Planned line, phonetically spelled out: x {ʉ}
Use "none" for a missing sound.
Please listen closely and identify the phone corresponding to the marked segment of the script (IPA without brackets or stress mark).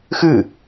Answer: ʉ